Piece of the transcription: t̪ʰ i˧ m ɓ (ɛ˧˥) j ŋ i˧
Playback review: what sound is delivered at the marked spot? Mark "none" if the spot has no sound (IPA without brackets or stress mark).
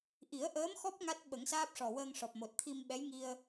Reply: ɛ˧˥